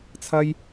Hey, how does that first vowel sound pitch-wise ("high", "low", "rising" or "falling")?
high